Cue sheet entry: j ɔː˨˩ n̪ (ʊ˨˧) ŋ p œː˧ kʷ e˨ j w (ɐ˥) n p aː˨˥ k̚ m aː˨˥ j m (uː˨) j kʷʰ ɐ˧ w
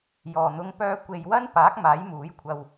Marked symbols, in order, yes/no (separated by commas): yes, yes, no